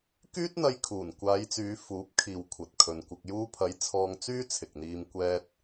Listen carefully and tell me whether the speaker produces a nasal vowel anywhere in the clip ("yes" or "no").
no